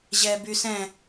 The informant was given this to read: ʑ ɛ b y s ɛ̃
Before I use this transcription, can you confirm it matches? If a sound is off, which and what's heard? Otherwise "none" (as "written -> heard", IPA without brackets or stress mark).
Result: none